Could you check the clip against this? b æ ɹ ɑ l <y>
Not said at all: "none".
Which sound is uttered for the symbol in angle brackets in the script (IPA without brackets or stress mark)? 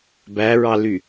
y